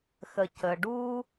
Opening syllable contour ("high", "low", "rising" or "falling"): low